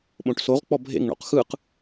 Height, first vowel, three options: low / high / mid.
mid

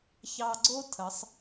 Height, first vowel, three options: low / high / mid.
low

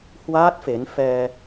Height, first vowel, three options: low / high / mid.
low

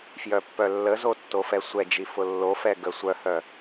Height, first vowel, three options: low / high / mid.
mid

